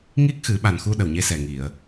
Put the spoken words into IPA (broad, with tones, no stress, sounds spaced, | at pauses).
ŋ i˦˥ k̚ x ɨ˨˩˦ ɓ a˨˩ n x u˧ ɗ ə˨˩ w ɲ e˧ s ɛ˨˩ ŋ i˨˩˨ ə̯